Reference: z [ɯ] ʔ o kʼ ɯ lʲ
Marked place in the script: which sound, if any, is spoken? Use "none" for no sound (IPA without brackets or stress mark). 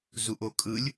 u